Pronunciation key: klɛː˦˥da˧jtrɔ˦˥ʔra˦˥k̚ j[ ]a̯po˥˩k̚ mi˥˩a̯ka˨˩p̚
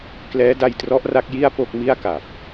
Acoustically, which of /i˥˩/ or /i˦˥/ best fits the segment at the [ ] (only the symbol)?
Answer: i˥˩